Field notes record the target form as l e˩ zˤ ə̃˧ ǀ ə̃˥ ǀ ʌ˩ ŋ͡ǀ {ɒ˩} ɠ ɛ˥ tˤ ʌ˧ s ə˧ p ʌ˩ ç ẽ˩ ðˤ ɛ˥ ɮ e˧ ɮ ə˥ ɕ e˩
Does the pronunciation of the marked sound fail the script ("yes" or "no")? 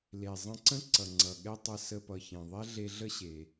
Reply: yes